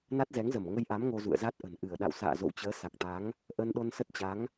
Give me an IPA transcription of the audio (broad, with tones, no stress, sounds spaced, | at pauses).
n a˦˥ t̚ z ɛ˨˦ ŋ z ə˧˩ m ŋ ə˧ j ʔ a˨˦ m ŋ o˧ z ṵ˧˨ ə̯ z a˦˥ t̚ ʔ ə̤˨˩ n ʔ ɨ˧˩ ə̯ ɗ a̰˧˨ w s a̰ː˧˨ z o̰˧˨ w t͡ɕ əː˨˦ s a˨˩ k̚ t̪ a˨˦ ŋ | ʔ ə˧ n ɗ o˧ n s ə˦˥ t̚ t͡ɕ a˨˦ ŋ